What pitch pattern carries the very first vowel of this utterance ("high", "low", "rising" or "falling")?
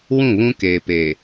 falling